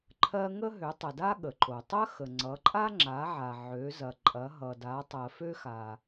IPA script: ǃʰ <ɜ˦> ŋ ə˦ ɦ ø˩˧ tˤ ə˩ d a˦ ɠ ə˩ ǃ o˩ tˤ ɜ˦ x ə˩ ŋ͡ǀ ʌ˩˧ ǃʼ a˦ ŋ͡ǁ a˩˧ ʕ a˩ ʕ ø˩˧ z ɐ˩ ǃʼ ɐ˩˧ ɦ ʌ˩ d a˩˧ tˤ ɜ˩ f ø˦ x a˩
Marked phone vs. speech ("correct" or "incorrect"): correct